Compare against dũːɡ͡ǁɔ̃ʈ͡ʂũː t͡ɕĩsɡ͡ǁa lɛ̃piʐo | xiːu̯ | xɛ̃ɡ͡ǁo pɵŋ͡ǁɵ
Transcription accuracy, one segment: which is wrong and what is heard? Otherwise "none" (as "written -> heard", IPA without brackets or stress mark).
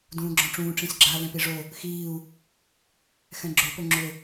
t͡ɕ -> ʈ͡ʂ